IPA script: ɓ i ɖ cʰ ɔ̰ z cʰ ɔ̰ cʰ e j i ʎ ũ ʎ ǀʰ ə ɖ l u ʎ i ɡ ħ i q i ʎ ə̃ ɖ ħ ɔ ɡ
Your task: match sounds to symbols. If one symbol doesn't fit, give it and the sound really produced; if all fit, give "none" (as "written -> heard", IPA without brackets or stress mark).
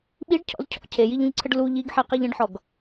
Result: none